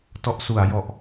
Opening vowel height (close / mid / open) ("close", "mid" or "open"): mid